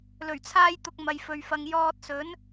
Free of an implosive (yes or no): yes